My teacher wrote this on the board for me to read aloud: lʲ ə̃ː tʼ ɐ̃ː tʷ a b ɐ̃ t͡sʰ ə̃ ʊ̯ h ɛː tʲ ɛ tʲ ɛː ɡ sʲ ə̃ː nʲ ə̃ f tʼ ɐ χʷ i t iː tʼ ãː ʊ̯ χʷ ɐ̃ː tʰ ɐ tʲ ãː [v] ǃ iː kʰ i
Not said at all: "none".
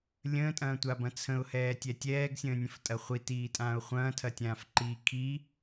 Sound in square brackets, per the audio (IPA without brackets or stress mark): f